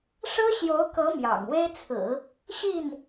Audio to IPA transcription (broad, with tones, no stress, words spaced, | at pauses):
ʂɤ˥ɕjo˧˥ʊ̯kɤ˧˥ mjɑ̰˨˩ŋwe˥ɪ̯t͡sʰɹ̩˨˩˦ | ɕi˥˩n